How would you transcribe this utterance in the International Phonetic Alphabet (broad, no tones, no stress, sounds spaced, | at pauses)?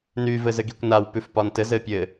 n y v ɘ z ɘ ɡ i kʷ n a w p ʉ f p ɒ n t ɘ z ɘ pʲ ɘ